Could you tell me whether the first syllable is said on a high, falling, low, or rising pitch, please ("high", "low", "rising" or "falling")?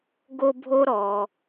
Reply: high